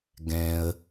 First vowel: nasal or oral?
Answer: nasal